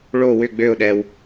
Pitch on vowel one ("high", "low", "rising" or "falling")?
falling